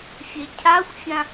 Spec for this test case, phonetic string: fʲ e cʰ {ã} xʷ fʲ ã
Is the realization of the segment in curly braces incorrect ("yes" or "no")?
yes